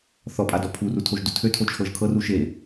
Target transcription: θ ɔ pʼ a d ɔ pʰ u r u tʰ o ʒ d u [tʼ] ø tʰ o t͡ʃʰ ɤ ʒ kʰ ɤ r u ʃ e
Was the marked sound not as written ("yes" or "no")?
yes